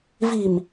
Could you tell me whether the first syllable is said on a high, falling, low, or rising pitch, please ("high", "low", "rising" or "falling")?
low